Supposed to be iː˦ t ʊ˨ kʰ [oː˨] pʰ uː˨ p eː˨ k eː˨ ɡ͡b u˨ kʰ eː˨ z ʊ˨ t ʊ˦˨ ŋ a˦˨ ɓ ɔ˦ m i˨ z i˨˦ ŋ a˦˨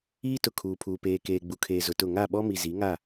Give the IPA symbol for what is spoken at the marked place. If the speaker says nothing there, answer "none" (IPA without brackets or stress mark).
uː˨